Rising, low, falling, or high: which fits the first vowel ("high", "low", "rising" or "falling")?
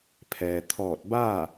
low